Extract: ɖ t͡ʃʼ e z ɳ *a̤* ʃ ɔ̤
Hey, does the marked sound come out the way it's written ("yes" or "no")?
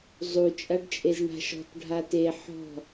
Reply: yes